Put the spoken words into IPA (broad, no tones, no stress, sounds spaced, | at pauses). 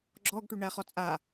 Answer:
ɡ͡ǁ ɔ ɡ ʈ ʉ ɳ æ χ ɔ t͡sʼ a